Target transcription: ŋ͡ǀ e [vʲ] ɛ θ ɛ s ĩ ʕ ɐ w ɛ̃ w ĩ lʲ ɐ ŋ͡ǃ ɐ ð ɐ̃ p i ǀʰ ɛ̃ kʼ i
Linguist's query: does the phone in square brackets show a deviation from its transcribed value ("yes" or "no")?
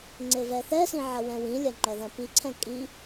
yes